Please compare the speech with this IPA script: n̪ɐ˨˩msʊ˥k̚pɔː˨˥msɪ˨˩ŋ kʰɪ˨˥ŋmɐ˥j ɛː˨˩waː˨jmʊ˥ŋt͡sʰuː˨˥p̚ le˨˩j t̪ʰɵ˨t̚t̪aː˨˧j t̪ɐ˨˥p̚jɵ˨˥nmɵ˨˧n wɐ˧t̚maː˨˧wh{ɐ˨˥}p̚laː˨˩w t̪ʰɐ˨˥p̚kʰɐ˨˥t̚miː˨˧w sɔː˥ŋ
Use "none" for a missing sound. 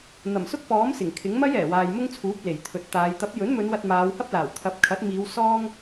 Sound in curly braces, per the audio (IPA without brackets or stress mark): ɐ˥